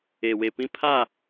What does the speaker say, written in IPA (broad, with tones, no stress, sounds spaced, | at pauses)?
e˨ w e˨ p ĩ˦ pʰ a˦˨